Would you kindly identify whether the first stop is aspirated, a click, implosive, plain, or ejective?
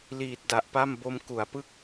plain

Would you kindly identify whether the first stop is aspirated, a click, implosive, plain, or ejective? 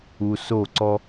click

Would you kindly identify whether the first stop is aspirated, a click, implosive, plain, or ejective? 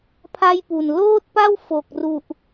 aspirated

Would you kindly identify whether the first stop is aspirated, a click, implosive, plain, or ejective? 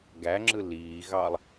plain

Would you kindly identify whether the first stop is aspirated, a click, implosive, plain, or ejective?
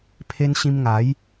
aspirated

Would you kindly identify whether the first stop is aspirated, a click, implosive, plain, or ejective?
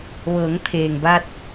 aspirated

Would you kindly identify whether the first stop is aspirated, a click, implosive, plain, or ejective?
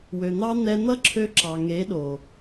click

